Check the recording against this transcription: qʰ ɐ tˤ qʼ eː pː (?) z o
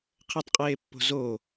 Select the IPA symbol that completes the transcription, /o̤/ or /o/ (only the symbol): o̤